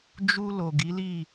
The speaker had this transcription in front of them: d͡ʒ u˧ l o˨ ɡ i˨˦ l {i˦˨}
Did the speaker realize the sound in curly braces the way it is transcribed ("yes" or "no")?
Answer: yes